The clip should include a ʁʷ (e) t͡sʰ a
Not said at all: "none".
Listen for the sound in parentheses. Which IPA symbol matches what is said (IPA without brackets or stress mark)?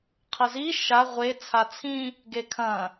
e